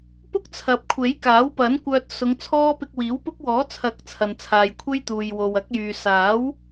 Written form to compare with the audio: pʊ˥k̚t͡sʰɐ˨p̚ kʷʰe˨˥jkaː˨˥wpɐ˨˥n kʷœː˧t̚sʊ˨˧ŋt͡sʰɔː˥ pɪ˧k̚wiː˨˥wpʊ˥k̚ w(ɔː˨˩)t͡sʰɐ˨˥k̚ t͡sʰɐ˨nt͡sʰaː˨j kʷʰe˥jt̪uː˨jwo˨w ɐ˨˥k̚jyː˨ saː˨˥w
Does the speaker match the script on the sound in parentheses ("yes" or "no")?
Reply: no